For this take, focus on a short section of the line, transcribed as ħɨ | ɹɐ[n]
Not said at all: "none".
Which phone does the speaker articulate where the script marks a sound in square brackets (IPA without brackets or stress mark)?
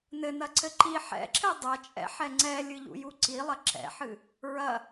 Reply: none